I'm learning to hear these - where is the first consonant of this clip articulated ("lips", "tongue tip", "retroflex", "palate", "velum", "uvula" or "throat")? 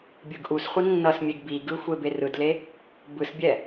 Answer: lips